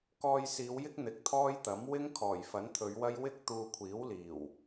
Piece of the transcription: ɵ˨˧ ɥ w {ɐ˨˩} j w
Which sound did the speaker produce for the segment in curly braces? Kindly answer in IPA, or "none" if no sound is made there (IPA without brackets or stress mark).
ɐ˥